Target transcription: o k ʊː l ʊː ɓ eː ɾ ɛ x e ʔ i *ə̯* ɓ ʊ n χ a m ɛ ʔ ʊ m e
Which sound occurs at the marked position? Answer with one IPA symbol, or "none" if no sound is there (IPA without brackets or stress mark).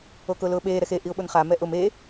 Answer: ʊ̯